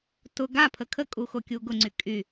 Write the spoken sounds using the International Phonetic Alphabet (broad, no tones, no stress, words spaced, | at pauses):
tʊ ɡapʰə kʰəkʼu xokʲuɡʊŋ͡ǀy kʼy